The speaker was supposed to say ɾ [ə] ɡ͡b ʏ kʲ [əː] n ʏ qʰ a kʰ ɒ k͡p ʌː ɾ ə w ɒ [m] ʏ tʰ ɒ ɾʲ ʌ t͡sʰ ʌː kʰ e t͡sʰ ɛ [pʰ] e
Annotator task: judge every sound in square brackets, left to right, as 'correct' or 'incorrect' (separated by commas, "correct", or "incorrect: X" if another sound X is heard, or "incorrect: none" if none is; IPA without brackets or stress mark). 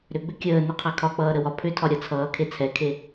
incorrect: ʏ, correct, incorrect: pʰ, incorrect: kʰ